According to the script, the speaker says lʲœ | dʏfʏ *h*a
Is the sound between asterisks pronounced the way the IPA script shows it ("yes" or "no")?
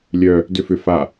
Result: no